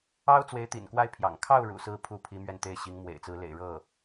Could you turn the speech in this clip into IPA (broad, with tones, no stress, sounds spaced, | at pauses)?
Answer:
ɑ˥ ʊ̯ t͡s w e˧˥ ɪ̯ t̪ ḭ˨˩ n k w a˥˩ ɪ̯ pʰ j ɑ̰˨˩ ŋ kʰ ɑ˥˩ ʊ̯ ɻ ṵ˨˩ s ɹ̩˥ pʰ u˥ pʰ i˧˥ m ɥ ɛ˥˧ n t̪ e˥˩ ɪ̯ ɕ i˧˥ ŋ m w ḛ˨˩ ɪ̯ t͡s ɹ̩˧˥ l ḛ˨˩ ɪ̯ ɻ ɤ˥˩